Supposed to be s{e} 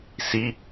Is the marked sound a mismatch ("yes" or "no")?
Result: yes